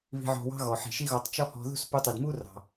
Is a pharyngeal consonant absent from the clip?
no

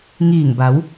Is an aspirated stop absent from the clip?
yes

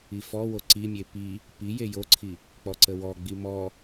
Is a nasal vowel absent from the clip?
yes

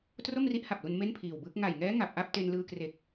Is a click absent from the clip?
yes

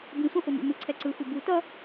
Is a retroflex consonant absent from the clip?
yes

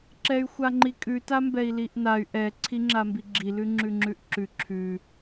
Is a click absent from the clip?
no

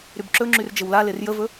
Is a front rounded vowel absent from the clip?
no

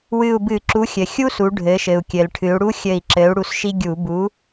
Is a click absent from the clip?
no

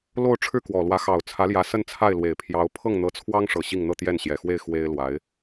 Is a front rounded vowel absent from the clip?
yes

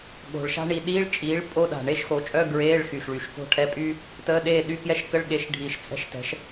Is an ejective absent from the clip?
no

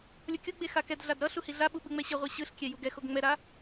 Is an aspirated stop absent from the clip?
yes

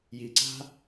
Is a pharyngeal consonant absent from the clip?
yes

